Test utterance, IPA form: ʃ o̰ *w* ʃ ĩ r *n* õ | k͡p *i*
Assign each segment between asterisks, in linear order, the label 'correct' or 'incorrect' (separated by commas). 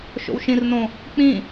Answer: correct, correct, incorrect